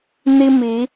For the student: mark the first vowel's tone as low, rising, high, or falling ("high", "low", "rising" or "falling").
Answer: high